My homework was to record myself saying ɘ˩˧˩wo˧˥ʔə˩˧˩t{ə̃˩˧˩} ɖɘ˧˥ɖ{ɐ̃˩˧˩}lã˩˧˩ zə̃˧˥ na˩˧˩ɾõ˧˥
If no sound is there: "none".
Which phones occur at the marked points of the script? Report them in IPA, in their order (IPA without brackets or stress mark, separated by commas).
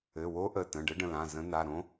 ə̃˩˧˩, ə̃˩˧˩